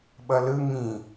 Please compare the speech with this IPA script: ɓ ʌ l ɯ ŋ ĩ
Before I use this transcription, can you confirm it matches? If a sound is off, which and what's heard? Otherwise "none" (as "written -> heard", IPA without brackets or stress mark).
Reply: none